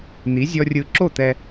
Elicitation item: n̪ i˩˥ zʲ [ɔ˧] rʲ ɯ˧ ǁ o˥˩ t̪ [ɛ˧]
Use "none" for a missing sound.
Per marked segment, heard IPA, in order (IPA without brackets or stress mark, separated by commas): ɔ˧, ɛ˧